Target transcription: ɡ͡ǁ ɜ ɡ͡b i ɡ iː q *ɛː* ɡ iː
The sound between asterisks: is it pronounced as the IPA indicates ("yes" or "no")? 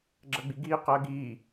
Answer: no